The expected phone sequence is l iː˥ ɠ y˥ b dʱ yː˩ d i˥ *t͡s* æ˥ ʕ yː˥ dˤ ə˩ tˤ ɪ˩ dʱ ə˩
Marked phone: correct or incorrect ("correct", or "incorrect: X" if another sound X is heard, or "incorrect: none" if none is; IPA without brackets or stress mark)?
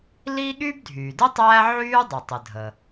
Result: incorrect: tˤ